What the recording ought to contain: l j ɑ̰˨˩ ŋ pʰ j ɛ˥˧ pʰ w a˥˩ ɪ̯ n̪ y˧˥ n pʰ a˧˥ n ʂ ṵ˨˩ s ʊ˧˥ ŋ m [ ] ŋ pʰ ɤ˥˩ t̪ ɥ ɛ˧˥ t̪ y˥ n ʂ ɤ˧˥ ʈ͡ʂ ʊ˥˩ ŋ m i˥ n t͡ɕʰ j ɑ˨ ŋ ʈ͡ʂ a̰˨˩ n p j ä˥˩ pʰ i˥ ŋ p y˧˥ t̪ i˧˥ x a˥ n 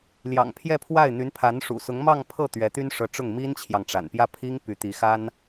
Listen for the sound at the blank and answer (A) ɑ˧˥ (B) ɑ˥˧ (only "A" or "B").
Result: B